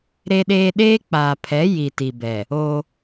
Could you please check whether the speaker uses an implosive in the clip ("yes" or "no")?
yes